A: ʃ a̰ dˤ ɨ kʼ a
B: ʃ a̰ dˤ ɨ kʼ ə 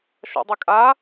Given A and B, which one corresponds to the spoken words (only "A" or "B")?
A